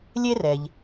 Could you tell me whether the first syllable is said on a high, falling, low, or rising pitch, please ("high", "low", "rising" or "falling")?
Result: high